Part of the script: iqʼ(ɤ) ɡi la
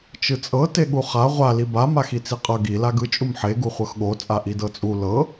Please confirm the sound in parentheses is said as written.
yes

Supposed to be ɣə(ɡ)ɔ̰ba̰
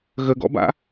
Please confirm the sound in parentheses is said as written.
yes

